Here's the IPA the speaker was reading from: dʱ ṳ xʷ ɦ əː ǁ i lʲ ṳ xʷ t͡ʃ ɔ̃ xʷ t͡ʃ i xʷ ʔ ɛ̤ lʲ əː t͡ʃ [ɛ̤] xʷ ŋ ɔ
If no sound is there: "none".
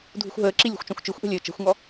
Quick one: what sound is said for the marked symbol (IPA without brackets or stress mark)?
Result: ɛ̤